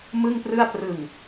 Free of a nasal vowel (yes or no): yes